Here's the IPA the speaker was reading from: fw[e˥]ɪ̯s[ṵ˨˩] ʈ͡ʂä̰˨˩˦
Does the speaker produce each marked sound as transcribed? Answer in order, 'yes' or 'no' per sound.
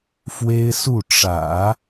yes, no

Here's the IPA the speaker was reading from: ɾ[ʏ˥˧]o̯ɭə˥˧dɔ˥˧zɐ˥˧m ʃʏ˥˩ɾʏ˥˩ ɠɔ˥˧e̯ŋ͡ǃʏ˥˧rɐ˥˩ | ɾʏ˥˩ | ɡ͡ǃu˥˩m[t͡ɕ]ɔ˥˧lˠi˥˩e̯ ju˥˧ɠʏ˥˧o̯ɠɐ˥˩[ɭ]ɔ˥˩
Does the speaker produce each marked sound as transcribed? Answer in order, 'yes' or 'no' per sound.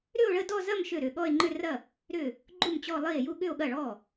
yes, yes, yes

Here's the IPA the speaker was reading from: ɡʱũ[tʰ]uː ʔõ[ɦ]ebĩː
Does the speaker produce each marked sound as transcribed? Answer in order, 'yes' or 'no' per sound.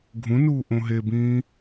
no, yes

